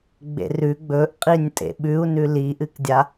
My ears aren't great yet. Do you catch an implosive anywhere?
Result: yes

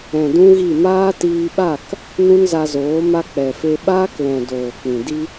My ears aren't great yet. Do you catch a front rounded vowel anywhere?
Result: no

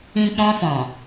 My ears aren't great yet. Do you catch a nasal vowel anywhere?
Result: yes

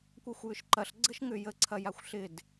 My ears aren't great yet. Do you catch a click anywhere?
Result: yes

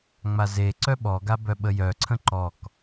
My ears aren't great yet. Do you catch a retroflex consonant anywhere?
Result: no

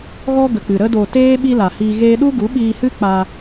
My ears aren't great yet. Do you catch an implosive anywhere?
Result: yes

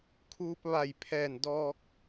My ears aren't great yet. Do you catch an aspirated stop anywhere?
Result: yes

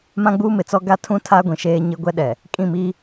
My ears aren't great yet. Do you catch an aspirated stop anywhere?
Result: yes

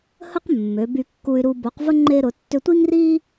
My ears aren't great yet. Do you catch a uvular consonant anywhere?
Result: yes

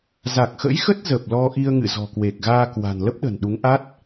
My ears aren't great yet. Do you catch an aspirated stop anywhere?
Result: no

